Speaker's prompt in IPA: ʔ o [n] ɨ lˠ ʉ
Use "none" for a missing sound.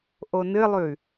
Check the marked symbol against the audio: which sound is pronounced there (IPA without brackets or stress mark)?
n